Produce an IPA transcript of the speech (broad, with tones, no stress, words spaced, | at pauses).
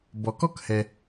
bɔ˩kɔ˥khɛ˩